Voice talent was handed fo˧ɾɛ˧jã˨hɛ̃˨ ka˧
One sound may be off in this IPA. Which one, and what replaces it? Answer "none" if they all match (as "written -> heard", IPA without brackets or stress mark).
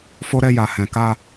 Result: ã˨ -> a˨